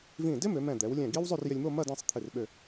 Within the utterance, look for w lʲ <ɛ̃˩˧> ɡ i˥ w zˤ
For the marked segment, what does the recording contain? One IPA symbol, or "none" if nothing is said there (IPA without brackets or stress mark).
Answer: ɛ̃˧˩